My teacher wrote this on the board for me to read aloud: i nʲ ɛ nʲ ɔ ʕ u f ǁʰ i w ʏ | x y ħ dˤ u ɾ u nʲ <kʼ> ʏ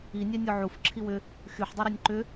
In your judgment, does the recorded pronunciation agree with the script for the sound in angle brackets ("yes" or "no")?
no